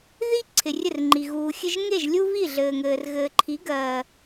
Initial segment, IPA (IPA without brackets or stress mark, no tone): ð